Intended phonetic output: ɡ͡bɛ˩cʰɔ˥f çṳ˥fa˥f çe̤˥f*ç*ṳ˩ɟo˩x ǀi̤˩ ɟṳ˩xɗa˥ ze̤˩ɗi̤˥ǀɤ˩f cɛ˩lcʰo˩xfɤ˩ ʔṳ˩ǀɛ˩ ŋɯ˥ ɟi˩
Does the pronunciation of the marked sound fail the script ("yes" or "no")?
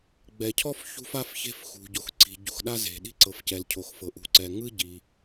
yes